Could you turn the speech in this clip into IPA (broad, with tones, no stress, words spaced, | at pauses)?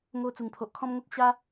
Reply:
ŋo˧ t͡su˨˩ŋpʰo˨ʔkʰɔ̃˦mŋo˦k̚ ɕa˦